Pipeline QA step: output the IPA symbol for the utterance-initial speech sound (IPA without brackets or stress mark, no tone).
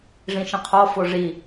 ʐ